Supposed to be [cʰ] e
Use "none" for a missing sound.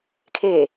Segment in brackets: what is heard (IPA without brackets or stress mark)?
kʰ